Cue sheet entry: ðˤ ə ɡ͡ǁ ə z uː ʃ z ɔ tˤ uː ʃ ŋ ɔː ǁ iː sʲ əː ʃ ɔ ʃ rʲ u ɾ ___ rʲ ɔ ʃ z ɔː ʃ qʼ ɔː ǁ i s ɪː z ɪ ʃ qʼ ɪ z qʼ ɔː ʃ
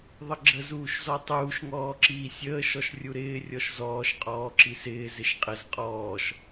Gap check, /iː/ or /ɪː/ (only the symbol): ɪː